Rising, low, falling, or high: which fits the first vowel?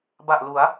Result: low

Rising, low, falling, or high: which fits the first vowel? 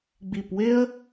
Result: low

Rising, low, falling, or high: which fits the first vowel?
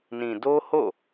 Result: low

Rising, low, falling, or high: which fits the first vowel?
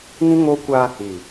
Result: high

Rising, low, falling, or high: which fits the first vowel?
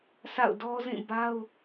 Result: falling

